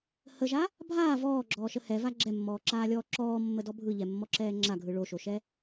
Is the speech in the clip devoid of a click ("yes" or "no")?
no